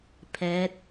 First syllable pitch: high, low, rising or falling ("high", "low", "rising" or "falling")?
rising